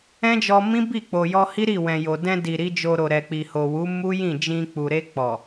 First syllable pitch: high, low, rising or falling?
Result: high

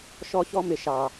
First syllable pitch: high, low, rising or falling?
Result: high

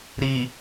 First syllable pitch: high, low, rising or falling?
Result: low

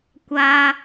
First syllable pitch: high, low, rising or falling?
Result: high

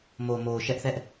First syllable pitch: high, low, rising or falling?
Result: low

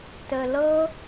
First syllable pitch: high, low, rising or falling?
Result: low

